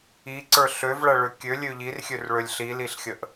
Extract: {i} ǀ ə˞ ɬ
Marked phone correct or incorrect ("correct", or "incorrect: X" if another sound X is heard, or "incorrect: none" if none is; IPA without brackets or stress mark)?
correct